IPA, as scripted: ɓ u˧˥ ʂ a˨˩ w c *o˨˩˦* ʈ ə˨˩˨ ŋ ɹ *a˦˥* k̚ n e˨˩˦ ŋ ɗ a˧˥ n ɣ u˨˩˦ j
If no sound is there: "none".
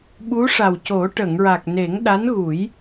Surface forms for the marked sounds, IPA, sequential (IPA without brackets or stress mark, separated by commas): o˨˩˦, a˨˩